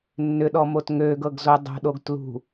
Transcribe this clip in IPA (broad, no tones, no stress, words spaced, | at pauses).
nːʏɗɔmot ŋøɡɤɡzo dˤo̤ɗoɡ tlṳ